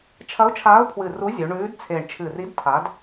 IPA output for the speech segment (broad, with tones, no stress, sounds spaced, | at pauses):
t͡ʃʰ ɐ˨˥ ʊ̯ t͡ʃʰ aː˨˥ ʊ̯ pʰ w ɨ˨˩ r u˨˥ zʲ ɵ˩˧ ɳ ʉː˨˥ d t͡sʰ e˨˩ ɳ t͡ʃʰ ɨ˨˩ r i˨˥ d tʰ a˨˥ d